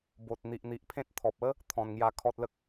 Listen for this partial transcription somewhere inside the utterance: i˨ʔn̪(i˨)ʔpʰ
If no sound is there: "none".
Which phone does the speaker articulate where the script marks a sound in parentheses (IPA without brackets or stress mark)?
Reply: i˨